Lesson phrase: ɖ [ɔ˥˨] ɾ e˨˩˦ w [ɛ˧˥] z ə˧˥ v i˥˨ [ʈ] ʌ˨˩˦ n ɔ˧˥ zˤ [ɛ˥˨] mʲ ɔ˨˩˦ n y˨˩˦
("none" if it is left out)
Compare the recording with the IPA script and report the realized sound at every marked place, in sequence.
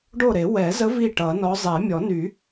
o˥˨, ɛ˨˩˦, ʈ, ɛ˨˩˦

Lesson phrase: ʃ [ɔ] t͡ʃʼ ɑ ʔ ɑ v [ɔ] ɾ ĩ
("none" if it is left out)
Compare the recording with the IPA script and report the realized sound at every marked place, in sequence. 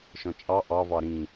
ɔ̃, ɑ

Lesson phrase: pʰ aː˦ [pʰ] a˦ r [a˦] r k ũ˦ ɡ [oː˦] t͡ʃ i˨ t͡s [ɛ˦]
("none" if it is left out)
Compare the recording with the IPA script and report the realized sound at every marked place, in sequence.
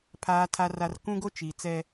tʰ, a˦, o˦, ɛ˦

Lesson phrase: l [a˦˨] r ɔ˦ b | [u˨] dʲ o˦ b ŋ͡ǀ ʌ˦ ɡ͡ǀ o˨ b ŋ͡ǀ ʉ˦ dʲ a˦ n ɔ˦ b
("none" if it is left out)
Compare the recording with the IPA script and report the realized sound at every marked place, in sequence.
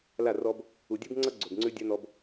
a˦˨, u˨

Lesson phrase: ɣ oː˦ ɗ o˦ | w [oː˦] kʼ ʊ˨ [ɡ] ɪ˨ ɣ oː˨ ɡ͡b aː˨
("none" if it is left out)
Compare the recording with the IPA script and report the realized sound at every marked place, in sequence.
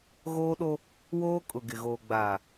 oː˦, ɡ

